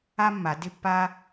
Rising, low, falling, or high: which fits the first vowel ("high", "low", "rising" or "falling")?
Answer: high